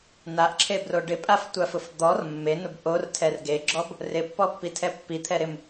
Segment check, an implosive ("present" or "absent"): absent